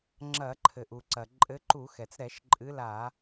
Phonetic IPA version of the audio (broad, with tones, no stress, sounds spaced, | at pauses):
ŋ͡ǁ ɐ˧˩˧ ǃʰ ɘ˩ ʔ u˩ ǀ ɐ˩ ǃʼ ɘ˨˦ ǃ u˧˩˧ x ɛ˩ t͡s ɾ ɛ˧˩˧ ʃ ǃʼ ɨ˨˦ l a˧˩˧